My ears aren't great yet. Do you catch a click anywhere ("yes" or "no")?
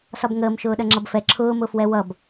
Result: yes